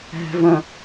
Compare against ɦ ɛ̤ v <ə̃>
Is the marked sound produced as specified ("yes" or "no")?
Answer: yes